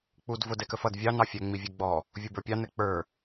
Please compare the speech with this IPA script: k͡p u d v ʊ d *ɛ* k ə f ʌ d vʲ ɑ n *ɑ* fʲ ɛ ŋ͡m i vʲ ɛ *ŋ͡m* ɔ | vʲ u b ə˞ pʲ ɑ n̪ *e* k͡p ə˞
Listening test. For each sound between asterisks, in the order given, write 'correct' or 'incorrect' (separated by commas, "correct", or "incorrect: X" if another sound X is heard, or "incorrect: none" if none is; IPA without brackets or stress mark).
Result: correct, correct, incorrect: ɡ͡b, incorrect: ɛ